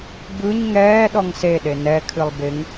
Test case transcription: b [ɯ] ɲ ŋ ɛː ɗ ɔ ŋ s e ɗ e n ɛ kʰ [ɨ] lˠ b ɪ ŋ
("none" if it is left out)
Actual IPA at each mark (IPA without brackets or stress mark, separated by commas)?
ɯ, ɨ